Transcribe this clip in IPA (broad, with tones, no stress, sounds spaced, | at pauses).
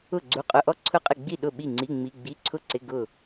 ʊ˥˨ ɡ͡ǀ u˧˥˧ qʼ ʊ˧˥˧ ʔ ɔ˥˨ ǀʰ ʊ˥˨ qʼ ɪ˥˨ ɡ͡b i˥˨ ɗ ʊ˥˨ ɓ i˥˨ ŋ͡ǀ i˧˥˧ ŋ͡m i˧˥˧ ɡ͡b i˧˥˧ ǀʰ ʊ˥˨ ǀ ɪ˧˥˧ ɡ ʊ˥˨